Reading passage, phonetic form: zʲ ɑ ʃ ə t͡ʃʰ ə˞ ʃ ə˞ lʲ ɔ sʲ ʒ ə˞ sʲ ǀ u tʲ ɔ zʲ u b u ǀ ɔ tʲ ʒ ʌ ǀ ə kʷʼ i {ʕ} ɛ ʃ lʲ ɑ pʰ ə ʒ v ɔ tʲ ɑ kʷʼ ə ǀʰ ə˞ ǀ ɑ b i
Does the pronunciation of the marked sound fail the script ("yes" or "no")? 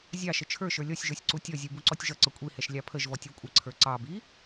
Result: yes